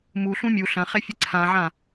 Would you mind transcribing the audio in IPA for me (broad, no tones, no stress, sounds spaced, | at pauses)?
m u ɬ ũ mʲ u ɬ ɐ̃ χ e fʲ ɨ ǀʰ ã ʕ ã